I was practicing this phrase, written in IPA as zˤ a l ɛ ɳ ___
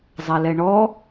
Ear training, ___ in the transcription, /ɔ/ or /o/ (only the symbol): ɔ